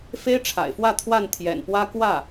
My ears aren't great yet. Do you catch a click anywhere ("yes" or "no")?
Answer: no